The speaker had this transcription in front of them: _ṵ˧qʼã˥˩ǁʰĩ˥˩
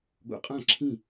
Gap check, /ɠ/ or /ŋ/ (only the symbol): ɠ